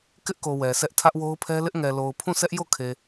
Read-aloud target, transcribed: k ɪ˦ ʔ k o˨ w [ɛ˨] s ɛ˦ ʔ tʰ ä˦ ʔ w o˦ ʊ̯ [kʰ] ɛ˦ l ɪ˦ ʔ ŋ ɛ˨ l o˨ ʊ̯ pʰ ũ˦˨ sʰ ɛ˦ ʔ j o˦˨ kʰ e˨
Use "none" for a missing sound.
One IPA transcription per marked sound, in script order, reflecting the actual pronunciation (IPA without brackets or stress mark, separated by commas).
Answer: ɛ˨, pʰ